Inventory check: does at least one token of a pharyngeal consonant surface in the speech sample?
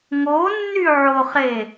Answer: yes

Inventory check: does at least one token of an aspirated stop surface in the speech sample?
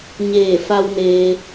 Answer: no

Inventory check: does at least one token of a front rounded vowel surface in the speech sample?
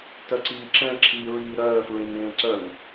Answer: yes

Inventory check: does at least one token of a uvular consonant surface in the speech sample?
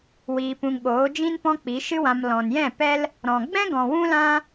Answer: no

